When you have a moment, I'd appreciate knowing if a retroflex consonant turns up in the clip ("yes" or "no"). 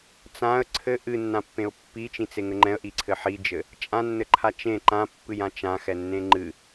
no